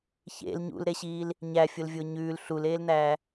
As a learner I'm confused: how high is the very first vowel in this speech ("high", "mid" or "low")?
mid